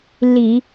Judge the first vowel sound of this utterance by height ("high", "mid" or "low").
high